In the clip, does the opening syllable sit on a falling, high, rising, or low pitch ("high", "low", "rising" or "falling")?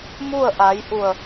falling